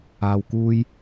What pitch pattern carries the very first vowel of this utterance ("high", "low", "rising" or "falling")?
low